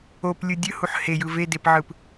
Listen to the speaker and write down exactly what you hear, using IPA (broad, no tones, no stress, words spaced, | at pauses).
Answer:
oplʲɯ dʲɯhuħ hejɯ vedepʕɯp